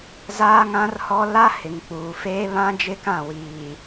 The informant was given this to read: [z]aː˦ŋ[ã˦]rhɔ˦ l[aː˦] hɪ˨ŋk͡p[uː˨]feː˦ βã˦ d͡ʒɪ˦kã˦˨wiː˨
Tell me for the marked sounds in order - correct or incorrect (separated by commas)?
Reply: correct, correct, incorrect, correct